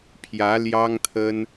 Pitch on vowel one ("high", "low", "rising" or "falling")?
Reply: rising